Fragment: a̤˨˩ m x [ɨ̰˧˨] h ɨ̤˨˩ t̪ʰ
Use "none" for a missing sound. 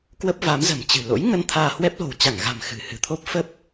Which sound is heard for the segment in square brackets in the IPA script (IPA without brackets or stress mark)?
ɨ̤˨˩